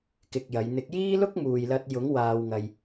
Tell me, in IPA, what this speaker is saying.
k ɪ˧ k̚ j ɐ˨˧ j n̪ ɪ˨˥ k̚ j iː˥ l ʊ˥ k̚ m uː˨ j l ɐ˧ t̚ j ʊ˨˥ ŋ w aː˧ w ŋ ɐ˧ j

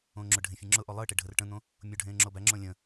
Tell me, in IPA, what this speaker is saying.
õː ŋ͡ǁ ʊ ɖʱ ẽ fʲ ẽ ŋ͡ǁ ʊ ʔ o lˠ ɨ ə̯ ʈ e ɖʱ ə r ʈ ə̃ n̪ õ | mʲ o ɖʱ ẽː ŋ͡ǁ o b æ ŋ͡ǁ õ lʲ ə̃

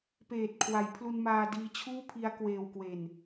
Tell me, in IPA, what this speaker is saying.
p eː˨˩ t̚ kʰ w a˩˦ j pʰ l u˧ n m aː˧ d iː˧ t͡ɕʰ uː˥˩ pʰ i˦˥ a̯ k w eː˧ w k w e˧ n

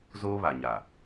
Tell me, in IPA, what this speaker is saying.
z oː˦ β a˨ ɲ a˨

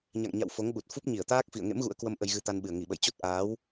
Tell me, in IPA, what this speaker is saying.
ɲ a̰˧˨ ŋ ɲ a̰˧˨ w f o˨˦ ŋ ɓ u˨˩ t̚ f u˦˥ p̚ ɲ i˧˩ ə̯ t̪ aː˦˥ k̚ f ḭ˧˨ ə̯ ŋ ḛ˧˥ m ɣ ṵ˧˥ ə̯ k w ə˧ m ʔ ə˧ j ɣ ɨ˧ t̪ a˧ n ɓ ɨ˨˩ ə̯ ŋ i˧˩ ɓ ə̰˧˨ j t͡ɕ o˦˥ t̚ ʔ aː˨˦ w

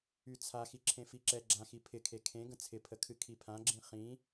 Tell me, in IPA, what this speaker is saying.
y t͡sʰ a x i ǁʰ ẽ f i ǁ ɛ ɡ͡ǁ ã x i pʰ ɪ kʰ e kʰ ẽ ɡ ə̃ t͡sʰ ɪ pʰ ə kʰ ɨ kʰ i pʰ ã ɡ͡ǁ ĩ χ ĩ

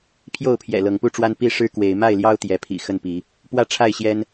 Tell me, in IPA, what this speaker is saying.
pʰ j o˥˨ ʊ̯ pʰ j ɛ̰˨˩ l ɤ˨˦ ŋ p u˥˨ ʈ͡ʂ w a˦ n p i˦ ʂ ɻ̩˦ k w e˨˦ ɪ̯ m a˥˨ ɪ̯ l j ɑ˦ ʊ̯ t̪ j ɛ˨˦ pʰ ḭ˨˩ x ə˥˨ n p i˨˦ | p w ä˥˨ ʈ͡ʂʰ a˥˨ ɪ̯ ɕ j ɛ˦ n

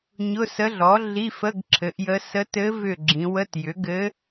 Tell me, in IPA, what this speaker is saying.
ɲ ʊ˧˥˧ s ə˧˥ ɮ ɔ˩˥ ɮ i˧˥˧ f ə˧˥˧ ɡ ǁʰ ɘ˩˥ ʔ j ə˧˥ s ə˧˥ t ɘ˧˥ v ʏ˧˩ ɡ͡ǁ ĩ˩˧ w ə˧˥˧ t j ʏ˩˥ ɡ ɘ˧˥

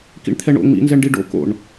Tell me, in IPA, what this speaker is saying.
k ḭ ɳ t̪ʰ ɛ ɳ o̰ ŋ͡m ḭ n z ɛ ɳ ɖ i ɖ o̰ k o̰ ɳ

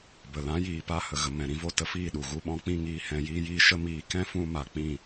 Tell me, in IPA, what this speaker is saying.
b ə˨ l ã˨˦ j iː˨ p a˦ h ə˨ ɣ ə˨ m ɛ̃˨ ɾ ĩ˨˦ v o˧ t ə˧ f iː˦˨ ɗ u˨ ɣ u˧ ɓ ɔ̃˨˦ k͡p ĩ˧ ŋ iː˧ h ɛ̃˧ j iː˦ j iː˦ ʃ ə˦ m iː˧ k ɛ̃˦ f ũ˧ m a˨ k͡p ĩ˦˨

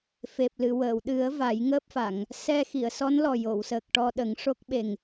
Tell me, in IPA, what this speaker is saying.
f e˨˩ p̚ l ɨ˨˩˨ w əː˨˩˨ w ɗ ɨ˨˩˦ ə̯ v a˨˩˦ j ŋ əː˦˥ p̚ f a˨˩˨ ŋ | s ɛ˧ x i˨˩˨ ə̯ s ɔ˧˥ n l ɔ˨˩ j o˨˩˨ w s əː˨˩ k̚ ʈ ɔ˧ ɗ ə˨˩˦ ŋ ʂ o˦˥ k̚ ɓ e˨˩ ŋ

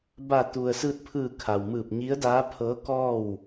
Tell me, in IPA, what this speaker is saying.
b a˧˩ t̪ u˩ ə̯ s ɯː˧ t̚ pʰ ɯː˧˩ kʰ a˩ w m ɯː˧˩ p̚ ɲ i˧˥ ə̯ d aː˧˥ pʰ ɤː˧˥ k ɔː˥˨ w

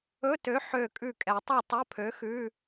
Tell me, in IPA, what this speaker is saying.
ɵ˧˥˧ t ø˨˥ ħ ø˧˩ kʼ ʉ˧˩ kʼ ɛ˩ tˤ ɛ˥˨ tˤ ɵ˧˥˧ pʰ ø˨˥ x ʉː˧˥˧

